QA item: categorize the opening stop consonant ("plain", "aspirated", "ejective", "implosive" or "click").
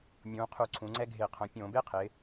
aspirated